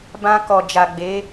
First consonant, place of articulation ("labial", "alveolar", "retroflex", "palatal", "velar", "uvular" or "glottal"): labial